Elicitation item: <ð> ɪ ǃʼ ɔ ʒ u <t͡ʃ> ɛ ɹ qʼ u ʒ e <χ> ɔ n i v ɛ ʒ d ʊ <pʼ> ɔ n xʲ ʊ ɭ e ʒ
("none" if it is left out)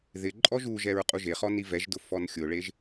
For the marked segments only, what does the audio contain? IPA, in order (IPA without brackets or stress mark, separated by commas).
ð, ʒ, χ, f